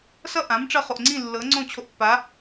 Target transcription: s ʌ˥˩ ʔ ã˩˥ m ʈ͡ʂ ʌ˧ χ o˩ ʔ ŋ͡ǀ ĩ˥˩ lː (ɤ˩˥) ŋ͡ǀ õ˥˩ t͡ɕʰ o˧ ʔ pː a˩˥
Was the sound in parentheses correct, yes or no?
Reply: yes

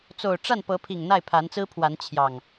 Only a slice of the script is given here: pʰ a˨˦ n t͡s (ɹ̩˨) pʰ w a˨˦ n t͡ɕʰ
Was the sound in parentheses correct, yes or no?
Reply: no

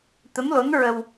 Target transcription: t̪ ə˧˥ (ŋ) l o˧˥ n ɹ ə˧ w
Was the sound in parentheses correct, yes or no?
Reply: no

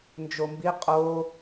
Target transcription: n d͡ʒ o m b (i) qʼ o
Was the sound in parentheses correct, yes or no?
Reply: yes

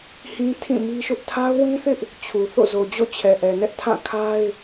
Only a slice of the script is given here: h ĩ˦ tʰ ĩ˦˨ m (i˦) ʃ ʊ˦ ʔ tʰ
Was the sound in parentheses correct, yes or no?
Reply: yes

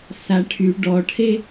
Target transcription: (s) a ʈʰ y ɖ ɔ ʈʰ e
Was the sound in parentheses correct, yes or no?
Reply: yes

